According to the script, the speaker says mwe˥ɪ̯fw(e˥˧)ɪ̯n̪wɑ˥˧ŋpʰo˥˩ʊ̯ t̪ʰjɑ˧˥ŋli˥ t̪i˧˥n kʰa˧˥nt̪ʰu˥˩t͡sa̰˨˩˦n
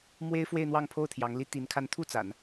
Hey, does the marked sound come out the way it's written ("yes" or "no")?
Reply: yes